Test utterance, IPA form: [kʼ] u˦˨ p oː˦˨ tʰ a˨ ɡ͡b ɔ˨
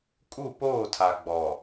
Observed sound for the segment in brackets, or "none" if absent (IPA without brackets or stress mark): kʼ